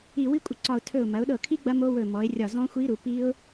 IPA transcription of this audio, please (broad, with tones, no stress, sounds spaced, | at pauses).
i˧˩ w i˦˥ kʷʼ ə˧˩ ǀ ɒ˧˩ ʊ̯ tʰ ɵ˧˩ ʊ̯ m ɐ˩˧ ʊ̯ ɗ ɤ˧˩ kʰ i˦˥ ɡ͡b ɐ˦˥ m o˦˥ w ɵ˧˩ m ɔ˩˧ ɪ̯ rʲ ɒ˧˩ z ɔ̃˦˥ xʷ i˦˥ ɾ u˩˧ p i˦˥ ʊ̯